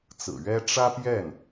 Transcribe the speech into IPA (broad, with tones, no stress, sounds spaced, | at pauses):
t͡s ɹ̩˨˩ ɥ ɛ˥ ʈ͡ʂ ä˥ p j ɛ˥˩ n